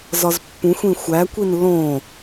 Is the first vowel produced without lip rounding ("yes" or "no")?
no